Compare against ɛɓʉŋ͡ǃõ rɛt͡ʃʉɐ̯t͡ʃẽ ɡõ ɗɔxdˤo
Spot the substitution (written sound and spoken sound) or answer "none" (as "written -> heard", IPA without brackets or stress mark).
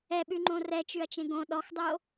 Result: none